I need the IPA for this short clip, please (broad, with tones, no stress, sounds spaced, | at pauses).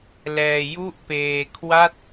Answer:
l ɛː˧ j u˥˩ ʔ p eː˧ kʰ w a˥˩ t̚